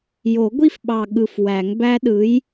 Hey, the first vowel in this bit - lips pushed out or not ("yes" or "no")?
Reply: yes